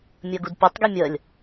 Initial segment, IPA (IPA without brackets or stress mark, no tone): mʲ